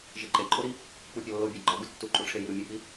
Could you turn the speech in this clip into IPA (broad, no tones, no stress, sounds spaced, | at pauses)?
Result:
ʒ e ǃʼ e ǃʼ o ɾ i | k͡p u pʲ ɒ lː o bʲ æ ɡ͡ǃ ɒ ɡ u tː u ǃʼ u ʈ͡ʂʰ e j i ɾ u mʲ u k͡p i